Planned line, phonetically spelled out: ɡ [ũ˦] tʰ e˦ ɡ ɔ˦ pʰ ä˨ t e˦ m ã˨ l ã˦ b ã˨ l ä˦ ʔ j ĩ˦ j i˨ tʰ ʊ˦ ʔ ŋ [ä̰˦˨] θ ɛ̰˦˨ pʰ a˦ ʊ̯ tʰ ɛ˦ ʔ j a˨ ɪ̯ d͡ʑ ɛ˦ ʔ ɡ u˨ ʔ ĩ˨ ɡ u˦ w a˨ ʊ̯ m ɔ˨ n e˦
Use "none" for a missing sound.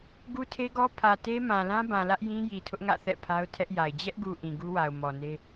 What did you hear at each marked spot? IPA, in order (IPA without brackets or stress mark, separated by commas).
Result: u˦, ä̰˦˨